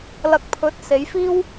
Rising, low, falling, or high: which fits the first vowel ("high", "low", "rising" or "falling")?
low